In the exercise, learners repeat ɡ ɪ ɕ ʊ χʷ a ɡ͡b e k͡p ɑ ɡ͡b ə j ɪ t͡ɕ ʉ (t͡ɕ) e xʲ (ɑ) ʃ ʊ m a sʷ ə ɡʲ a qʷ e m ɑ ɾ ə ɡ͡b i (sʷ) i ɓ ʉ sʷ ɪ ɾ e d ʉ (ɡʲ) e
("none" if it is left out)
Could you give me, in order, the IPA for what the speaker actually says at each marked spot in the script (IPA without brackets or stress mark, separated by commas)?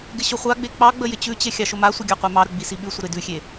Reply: t͡ɕ, ɑ, s, xʲ